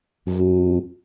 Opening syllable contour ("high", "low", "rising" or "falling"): low